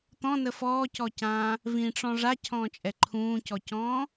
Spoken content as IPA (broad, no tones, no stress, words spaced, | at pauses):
t̪ɔ̃nə fɔːcɔcãː | vĩʈ͡ʂɔ̃ ʐacʰɔ̃ːt͡ʃʼɛ ǃʰũːcɔcɔ̃ː